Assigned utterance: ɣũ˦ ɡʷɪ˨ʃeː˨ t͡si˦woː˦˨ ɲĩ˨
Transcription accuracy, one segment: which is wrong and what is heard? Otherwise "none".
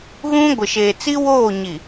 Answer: ĩ˨ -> i˨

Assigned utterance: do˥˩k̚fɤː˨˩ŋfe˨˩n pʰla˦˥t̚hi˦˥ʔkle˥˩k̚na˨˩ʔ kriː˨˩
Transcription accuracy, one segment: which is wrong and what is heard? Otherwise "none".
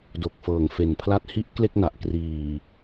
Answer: o˥˩ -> o˨˩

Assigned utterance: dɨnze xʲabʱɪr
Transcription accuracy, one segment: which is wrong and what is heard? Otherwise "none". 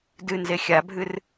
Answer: ɪ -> ɨ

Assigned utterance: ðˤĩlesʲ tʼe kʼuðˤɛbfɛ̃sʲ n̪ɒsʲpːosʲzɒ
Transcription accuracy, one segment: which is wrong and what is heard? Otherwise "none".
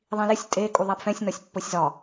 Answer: none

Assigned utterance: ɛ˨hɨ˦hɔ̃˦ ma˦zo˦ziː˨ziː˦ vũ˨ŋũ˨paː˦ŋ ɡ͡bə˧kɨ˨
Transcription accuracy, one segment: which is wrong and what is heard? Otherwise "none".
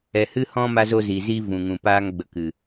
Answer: none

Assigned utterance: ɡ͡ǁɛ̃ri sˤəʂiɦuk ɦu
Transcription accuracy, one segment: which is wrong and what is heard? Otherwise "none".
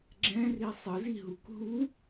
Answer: ʂ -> z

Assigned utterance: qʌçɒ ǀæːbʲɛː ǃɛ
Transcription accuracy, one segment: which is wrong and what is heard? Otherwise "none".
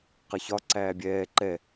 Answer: none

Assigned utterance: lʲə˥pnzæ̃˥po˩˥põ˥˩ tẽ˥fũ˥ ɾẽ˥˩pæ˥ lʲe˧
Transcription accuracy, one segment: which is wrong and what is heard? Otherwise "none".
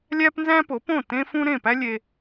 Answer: ə˥ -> æ˥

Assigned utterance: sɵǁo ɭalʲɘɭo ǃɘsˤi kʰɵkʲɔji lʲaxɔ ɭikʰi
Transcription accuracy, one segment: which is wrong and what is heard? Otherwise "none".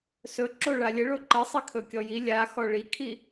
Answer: none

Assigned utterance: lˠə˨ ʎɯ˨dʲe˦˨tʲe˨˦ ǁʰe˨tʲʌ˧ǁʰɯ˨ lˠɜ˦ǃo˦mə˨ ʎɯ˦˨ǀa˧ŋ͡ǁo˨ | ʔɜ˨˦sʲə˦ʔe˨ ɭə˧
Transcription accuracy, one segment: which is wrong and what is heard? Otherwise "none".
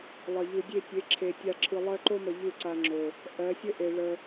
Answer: ʌ˧ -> a˧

